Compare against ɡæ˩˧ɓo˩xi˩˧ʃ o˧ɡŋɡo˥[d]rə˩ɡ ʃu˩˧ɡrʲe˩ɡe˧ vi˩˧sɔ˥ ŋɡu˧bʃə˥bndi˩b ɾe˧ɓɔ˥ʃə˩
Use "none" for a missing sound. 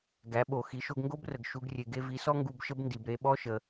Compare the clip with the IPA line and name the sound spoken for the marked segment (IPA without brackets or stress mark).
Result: b